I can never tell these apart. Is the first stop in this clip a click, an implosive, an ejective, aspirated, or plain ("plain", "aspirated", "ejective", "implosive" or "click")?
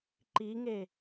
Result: click